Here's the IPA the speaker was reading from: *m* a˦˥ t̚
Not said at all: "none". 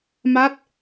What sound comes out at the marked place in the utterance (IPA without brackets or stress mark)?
m